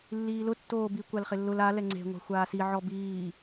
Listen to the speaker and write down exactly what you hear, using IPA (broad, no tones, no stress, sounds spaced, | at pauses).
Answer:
lː iː l ʊ tː oː b i kʷ a l χ ɪ lː ʊ l a l ɛ ŋ͡ǀ e̤ ŋʷ a̤ xʷ aː s i ʕ ɔ b iː